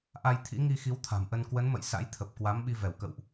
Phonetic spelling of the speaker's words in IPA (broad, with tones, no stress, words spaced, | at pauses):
ʔa˧j t̪ʰḭ˧˥ŋi˧xi˨˦w t̪ʰa̤˨˩mʔə˧n kwə˨˦nmə̰˧˨j sa̰˧˥jt̪ʰə˨˩p̚kwa˨˦mɓi˧ vɛ˧˩wkə̰˧˨wʔ